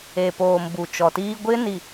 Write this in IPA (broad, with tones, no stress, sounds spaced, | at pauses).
e˨ p oː˨ m b u˨ t͡ʃ ɔ˨ t iː˦ ɡʷ ɪ˦ n i˨